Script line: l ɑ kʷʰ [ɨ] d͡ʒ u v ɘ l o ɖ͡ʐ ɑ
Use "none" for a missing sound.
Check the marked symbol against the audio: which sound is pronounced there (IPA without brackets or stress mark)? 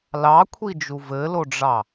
i